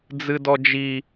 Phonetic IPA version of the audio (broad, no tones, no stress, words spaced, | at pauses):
d͡zɨdɔd͡ʒi